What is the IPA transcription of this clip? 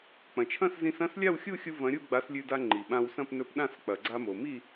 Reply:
k͡p ɐ̃˩ t͡ʃʰ ɐ̃˥˨ s z ĩ˧ s ɐ̃˥˨ s lʲ a˥˨ w xʲ u˥˨ xʲ u˧ v ɐ̃˨˥ ɾʲ u˥˨ ɡ͡b a˨˥ s lʲ ʉ˧ d a˧ ŋ͡ǃ i˩ ɓ ã˧ w s ɐ̃˥˨ p n ɵ˧ p ɗ ã˥˨ s k͡p ɐ˩ ɡ͡ǀ a˧ m o˩ m i˥˨

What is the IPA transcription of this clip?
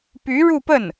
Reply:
p y˧˥ ɻ u˥˧ p ə˥˩ n

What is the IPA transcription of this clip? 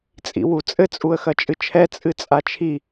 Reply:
t͡sʼ ḭ w u t͡sʼ ɘ t͡sʼ u ə̯ x ɐ t͡ʃʼ ɨ t͡ʃʰ ɛ t͡sʼ ɨ t͡sʼ a t͡ʃʰ i

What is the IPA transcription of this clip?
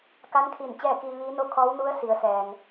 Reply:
k a˧˥ n kʰ i˧˩ n t͡ɕ ɛː˥˨ k iː˧ ʋ iː˧˥ n o˥˨ kʰ ɔː˧˥ w n u˧˥ ə̯ s i˩˧ ə̯ s ɛː˩ ŋ

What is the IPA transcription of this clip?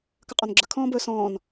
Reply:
k ə qʼ ɔ n ɡ͡ǁ ə kʰ ɔ̃ː b ɵː s ɔ̃ː n

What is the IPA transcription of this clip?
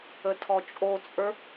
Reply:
ə tʰ ɔ t͡ʃʼ o t͡sʼ ə˞

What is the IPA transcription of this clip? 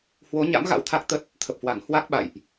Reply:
h w o˨˦ ɲ a̰˧˥ m ɣ a̰˧˥ w t̪ʰ a˦˥ k̚ t̪ ə˦˥ t̚ | t̪ʰ ə˨˩ p̚ h w a˧˩ ŋ h w a˦˥ k̚ ɓ a̰˧˨ j ʔ

